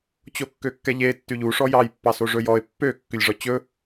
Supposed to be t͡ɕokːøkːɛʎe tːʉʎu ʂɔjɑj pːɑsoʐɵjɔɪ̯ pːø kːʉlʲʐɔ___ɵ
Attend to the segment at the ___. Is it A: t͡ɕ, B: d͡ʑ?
A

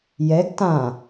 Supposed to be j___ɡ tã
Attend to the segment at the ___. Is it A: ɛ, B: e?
A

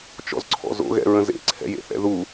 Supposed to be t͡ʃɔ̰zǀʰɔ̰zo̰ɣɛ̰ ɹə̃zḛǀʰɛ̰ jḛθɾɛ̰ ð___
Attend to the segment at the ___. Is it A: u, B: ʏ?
A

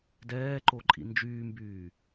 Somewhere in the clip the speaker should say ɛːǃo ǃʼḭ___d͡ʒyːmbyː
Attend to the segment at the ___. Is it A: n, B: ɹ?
A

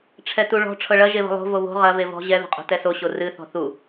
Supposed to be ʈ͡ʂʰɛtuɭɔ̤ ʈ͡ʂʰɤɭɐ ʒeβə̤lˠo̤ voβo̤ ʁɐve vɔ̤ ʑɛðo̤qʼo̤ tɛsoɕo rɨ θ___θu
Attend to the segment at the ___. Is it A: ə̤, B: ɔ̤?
B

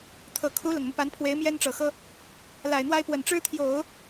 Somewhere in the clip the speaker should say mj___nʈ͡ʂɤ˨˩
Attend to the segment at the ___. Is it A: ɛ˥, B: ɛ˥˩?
A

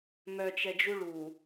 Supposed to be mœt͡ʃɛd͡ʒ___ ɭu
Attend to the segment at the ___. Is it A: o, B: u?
B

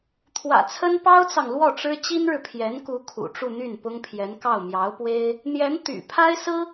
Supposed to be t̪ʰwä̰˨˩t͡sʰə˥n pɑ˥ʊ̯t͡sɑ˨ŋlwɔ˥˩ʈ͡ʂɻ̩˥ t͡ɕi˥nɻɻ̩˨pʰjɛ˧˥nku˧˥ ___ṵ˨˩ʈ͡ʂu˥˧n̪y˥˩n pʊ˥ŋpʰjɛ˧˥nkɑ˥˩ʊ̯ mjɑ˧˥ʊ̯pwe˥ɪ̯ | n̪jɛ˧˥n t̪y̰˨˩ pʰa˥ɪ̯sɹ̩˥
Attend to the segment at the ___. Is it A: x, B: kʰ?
B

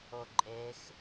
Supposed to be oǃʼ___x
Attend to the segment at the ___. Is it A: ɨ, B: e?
B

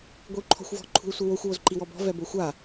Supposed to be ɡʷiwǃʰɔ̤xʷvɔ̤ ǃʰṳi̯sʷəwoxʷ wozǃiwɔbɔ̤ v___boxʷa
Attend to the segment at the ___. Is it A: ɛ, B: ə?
A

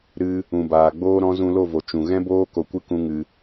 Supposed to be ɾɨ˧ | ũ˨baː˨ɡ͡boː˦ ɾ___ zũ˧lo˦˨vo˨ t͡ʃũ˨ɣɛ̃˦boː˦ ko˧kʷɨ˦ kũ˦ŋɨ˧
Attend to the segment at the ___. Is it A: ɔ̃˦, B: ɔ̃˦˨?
A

